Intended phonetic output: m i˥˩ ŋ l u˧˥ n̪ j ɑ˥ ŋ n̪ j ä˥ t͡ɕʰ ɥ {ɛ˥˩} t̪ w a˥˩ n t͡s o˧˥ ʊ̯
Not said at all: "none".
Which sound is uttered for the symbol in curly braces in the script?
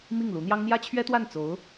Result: ɛ˥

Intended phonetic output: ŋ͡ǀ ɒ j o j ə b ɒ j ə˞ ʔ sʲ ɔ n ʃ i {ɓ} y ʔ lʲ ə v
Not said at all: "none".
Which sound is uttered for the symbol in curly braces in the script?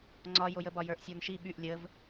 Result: ɓ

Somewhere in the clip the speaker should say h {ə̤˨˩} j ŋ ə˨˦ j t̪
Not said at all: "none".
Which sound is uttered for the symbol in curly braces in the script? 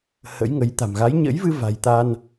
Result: ə̰˧˥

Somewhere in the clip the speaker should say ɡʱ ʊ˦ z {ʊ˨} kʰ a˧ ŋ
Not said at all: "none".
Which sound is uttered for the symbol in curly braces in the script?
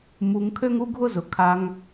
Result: ʊ˨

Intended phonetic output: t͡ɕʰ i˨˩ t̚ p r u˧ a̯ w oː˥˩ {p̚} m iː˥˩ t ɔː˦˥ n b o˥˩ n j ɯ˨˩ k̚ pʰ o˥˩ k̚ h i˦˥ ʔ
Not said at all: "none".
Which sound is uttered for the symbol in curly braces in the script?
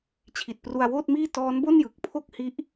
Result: t̚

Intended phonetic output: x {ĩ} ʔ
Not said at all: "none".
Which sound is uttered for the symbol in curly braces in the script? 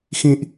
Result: ĩ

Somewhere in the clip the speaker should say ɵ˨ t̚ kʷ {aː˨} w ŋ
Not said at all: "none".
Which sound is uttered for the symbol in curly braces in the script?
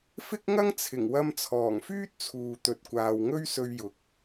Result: aː˨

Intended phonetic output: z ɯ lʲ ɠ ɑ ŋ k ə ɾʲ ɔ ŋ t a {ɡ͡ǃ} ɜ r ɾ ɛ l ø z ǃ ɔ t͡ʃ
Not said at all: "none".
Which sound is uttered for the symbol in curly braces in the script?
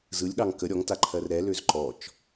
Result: ǃʰ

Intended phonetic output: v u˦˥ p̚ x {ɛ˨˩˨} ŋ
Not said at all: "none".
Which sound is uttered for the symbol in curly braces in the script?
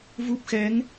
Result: ɛ˧˥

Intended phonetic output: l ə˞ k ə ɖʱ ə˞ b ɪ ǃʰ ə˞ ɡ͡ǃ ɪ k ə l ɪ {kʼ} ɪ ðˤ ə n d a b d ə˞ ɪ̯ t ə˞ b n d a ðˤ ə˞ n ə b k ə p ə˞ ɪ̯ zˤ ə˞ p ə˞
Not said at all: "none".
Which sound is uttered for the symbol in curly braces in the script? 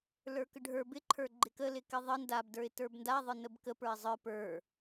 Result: k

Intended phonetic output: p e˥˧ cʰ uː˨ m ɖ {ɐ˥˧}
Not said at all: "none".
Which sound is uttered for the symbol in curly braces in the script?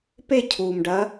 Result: ɐ˧˥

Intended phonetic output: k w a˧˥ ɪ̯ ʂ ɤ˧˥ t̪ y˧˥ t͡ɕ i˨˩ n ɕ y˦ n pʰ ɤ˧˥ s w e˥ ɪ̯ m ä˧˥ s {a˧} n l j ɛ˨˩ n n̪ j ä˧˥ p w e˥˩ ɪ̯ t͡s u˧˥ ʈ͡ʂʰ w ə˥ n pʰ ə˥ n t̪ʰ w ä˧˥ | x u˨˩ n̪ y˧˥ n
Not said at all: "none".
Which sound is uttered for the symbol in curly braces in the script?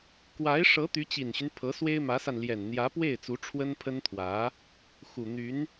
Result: a˧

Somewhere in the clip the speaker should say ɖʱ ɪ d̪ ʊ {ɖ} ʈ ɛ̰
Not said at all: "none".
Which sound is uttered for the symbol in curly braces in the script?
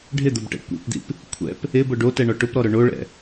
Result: b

